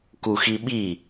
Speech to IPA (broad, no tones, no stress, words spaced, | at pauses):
kuxiɓi